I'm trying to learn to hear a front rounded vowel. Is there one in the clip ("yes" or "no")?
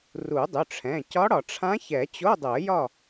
yes